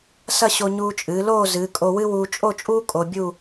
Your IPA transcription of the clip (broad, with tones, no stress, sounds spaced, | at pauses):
s ɐ˥˧ ɕ o˧ ɲ uː˧ t͡ʃʼ ɨː˩˧ l oː˥˧ z ɨː˩˧ kʼ o˧ w ɨ˥ w uː˧ t͡ʃʼ o˥˧ t͡ʃʼ uː˥ kʼ o˧ bʲ u˥˧